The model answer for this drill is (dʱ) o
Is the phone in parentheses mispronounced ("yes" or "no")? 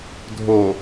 no